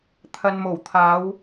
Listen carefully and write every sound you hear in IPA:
t̪ʰɐ˨nmo˨˩wt̪ʰaː˨˧w

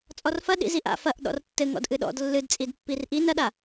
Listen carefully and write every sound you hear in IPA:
t͡sʼɔrfɐ ɗḭziʔa̰ fɐʔ ɗɔ̰rtːɘŋɔ̰d ʔɨɗɔ̰d lːɨdt͡sʼid pːirʔin ɐɗa

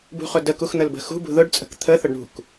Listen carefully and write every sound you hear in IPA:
bṳχʊdəkux n̪əlbə̤xṳ bṳðʊɖt͡sʼə̤k t̪ʰə θʊɖɳṳk

